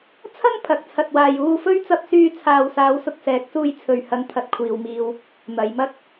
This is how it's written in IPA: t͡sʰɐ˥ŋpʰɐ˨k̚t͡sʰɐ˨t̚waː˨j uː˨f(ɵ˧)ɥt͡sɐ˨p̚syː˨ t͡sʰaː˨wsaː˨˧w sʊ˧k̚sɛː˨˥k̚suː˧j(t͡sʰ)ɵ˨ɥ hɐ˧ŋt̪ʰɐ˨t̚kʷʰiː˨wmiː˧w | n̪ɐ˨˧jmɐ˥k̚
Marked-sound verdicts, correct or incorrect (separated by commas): correct, correct